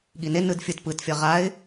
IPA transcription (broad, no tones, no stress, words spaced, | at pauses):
ɠine nɯdfʲɯt pɯt fʲʌʁaɪ̯